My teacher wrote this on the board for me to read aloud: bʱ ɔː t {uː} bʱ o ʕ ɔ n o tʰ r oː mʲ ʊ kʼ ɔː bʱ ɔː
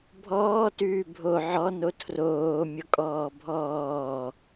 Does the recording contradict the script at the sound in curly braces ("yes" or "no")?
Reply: yes